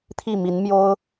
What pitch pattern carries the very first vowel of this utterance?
falling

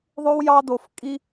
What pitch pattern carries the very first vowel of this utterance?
high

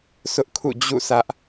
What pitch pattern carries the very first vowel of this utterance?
high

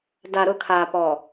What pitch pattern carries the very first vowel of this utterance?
low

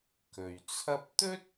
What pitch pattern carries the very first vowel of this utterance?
low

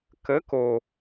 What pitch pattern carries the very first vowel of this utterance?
rising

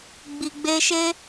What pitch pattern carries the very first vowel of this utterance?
low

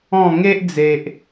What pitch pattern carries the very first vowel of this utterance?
falling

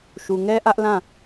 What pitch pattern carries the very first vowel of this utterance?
low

